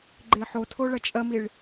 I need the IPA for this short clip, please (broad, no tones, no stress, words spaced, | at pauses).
ɡ͡ǃeħotʰo ɭɐt͡ʃʼɐmiɭ